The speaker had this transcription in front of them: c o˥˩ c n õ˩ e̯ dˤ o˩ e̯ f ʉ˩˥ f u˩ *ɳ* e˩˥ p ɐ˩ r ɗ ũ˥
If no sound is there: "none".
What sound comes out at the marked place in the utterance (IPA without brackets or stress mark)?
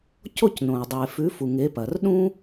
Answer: ŋ